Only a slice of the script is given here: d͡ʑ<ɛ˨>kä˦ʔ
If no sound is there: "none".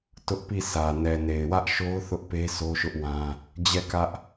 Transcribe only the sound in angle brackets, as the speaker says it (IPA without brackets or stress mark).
ɛ˦˨